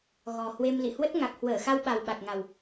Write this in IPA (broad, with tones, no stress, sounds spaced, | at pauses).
ɣ ɔ˨˩ h w e˧ m l ḭ˧˨ h w ə˦˥ t̚ ŋ a˨˩ k̚ h w əː˧˩ x a˧ w ɓ a˨˩ w ɓ a˨˩ k̚ ŋ a˨˩ w